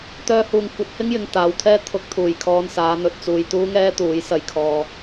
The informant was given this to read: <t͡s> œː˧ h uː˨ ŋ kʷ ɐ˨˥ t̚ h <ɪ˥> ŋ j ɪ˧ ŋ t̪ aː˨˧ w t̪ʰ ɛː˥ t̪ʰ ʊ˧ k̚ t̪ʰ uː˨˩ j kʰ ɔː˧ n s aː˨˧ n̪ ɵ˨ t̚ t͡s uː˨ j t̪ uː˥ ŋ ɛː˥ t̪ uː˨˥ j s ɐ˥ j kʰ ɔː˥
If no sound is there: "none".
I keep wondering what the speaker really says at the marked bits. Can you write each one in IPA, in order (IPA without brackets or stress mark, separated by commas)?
t̪, ɪ˥